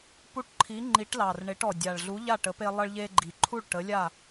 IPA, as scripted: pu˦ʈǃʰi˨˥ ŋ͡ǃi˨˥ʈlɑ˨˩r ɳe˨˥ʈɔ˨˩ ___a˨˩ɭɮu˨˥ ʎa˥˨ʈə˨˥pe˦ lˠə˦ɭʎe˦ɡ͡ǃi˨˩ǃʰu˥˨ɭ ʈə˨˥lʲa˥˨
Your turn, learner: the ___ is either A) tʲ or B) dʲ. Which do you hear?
B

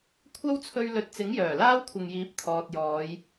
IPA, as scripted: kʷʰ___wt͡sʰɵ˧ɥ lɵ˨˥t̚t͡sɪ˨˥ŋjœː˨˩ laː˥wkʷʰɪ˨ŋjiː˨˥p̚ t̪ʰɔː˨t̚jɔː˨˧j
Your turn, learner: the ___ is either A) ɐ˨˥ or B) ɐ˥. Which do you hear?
B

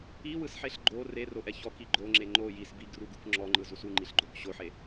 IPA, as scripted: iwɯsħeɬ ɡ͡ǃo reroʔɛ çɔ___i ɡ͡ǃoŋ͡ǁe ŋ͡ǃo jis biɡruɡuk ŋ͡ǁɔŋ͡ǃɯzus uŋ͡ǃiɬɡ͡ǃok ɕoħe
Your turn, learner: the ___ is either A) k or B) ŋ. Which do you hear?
A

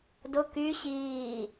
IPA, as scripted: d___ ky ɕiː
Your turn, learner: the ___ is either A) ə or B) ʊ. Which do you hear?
B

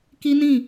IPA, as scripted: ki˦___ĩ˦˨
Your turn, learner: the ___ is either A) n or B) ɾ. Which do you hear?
A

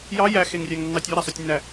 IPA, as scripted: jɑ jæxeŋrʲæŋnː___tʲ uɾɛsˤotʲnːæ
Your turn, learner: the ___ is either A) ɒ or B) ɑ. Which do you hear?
B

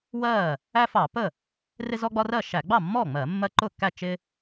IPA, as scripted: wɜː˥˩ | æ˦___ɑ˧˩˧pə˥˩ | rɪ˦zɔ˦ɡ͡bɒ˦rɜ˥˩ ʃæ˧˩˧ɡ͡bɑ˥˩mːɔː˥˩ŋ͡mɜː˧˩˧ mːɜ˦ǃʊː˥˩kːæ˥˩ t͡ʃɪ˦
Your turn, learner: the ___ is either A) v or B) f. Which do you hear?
B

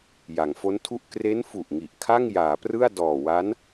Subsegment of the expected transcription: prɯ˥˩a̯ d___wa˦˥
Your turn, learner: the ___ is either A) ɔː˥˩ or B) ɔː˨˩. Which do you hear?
B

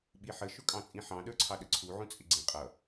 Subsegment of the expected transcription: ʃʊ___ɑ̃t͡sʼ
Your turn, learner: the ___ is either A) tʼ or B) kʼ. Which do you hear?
B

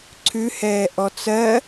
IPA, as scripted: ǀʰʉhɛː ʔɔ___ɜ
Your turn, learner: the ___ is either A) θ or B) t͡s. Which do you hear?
B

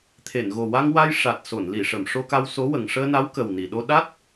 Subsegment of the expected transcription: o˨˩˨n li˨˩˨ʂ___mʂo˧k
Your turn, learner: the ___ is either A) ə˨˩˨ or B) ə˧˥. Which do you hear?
A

